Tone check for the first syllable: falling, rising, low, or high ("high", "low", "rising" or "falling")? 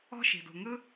high